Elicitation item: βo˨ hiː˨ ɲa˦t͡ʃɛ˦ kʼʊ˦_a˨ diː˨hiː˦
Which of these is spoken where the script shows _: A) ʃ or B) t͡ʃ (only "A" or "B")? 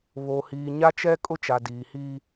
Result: B